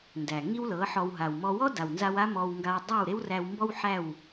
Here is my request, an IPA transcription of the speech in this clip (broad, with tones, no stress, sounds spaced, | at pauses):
n d æ˩ ŋ i˥ w l ɤ˩˥ ħ ɔ˧ w ɦ a˩ w m ɔ˧ w ɔ˥ d a˩ w n z a˧ w a˥ m ɔ˧ w ŋ ɡ a˧ w dˤ a˥˩ w ɾ e˥ w r æ˧ w m b ɔ˥ w ħ æ˥˩ w